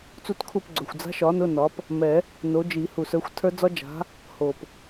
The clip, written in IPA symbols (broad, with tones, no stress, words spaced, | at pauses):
t͡su˦˨tkʰu˦˨pɡ͡ǀɵ˨˩xʷ d͡za̤˦˥ʃɒ˨˥nʊ˧˥˧ nɒ˨˥p | mɛ˨˩˦ | no˨˥d͡ʒi˨˩˦ hu˨˩sə˞˨˥xʷtʰə˞˦˥ d͡zɒ˦˥d͡ʒa̤˨˥ | ho˨˩p